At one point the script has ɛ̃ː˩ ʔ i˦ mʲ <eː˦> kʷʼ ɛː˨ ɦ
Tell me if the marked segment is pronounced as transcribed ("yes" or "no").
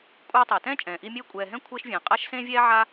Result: yes